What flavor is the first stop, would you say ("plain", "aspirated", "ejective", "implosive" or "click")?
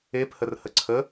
plain